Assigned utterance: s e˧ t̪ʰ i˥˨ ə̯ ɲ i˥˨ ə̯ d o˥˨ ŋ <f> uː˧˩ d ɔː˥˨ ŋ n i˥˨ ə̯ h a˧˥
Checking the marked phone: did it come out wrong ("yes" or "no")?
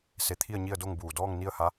yes